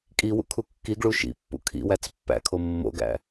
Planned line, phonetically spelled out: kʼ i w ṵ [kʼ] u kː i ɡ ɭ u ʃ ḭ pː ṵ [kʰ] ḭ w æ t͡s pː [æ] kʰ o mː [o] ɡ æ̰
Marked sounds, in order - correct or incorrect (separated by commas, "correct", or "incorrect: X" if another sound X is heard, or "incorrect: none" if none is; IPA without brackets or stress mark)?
incorrect: kʰ, correct, incorrect: æ̰, incorrect: o̰